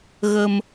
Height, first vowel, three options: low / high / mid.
mid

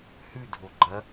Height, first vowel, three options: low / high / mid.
high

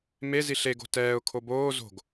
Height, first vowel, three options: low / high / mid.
mid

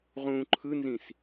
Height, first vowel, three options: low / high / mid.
high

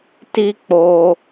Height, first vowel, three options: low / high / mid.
high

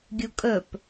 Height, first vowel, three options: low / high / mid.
high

